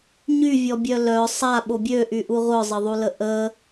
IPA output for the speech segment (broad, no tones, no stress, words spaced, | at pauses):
ɲyvʲɔbʲœ lœ sˤaɓo bʲøʔyʔu ʁʷœzˤəðˤulə ʔə